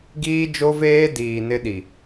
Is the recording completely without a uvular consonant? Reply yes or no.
yes